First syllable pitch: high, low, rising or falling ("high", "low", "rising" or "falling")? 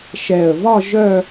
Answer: low